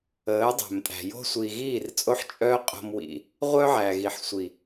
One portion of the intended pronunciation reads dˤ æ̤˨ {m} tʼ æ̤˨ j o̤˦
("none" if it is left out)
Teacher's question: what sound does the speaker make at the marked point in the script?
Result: m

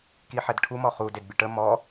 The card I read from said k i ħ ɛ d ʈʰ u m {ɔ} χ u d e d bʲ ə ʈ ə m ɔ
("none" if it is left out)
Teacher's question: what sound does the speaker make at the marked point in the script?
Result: ɔ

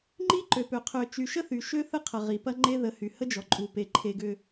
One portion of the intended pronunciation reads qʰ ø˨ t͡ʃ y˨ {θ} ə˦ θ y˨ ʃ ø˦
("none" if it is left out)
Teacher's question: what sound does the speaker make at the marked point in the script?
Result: ʃ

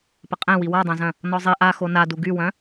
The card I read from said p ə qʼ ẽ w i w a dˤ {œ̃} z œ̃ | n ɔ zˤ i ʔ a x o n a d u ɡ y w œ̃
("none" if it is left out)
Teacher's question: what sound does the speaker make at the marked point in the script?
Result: œ̃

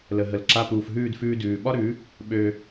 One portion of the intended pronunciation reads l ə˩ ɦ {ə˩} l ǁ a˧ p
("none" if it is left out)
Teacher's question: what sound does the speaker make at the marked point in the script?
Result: ə˩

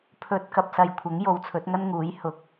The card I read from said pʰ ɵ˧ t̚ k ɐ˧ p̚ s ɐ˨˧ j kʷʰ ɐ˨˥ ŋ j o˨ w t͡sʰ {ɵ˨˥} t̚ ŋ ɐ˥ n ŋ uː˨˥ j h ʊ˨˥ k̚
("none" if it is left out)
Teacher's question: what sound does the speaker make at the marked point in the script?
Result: ɵ˨˥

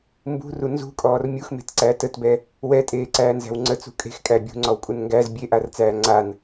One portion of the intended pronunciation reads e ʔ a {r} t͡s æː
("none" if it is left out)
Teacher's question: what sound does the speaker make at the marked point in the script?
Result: r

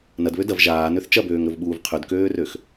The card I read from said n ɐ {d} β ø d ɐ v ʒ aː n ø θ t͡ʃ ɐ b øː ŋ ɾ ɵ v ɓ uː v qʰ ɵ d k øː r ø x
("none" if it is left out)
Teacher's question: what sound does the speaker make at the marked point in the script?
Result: d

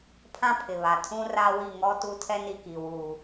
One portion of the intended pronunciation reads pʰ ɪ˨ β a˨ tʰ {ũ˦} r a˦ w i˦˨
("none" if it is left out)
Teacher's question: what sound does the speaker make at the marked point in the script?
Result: ũ˦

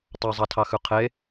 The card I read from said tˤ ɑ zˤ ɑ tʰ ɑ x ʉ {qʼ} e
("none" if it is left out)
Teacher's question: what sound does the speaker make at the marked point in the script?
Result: qʰ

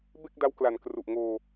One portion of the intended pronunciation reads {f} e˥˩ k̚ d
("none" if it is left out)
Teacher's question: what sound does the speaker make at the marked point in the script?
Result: b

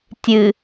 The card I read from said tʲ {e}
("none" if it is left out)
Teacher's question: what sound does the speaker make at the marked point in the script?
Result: ɨ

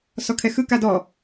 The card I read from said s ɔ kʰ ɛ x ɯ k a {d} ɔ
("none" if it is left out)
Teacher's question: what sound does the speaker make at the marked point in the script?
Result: d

